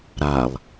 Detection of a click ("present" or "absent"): absent